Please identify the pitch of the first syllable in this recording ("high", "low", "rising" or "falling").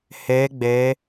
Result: rising